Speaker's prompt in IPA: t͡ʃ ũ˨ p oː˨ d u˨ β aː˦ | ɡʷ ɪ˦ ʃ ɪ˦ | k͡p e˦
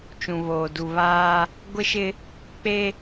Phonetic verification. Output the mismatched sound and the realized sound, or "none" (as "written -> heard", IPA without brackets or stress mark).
p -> β